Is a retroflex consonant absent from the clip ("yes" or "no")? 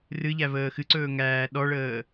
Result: no